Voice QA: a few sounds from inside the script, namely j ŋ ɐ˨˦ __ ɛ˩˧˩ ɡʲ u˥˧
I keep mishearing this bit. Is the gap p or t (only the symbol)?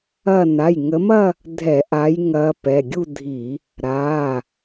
p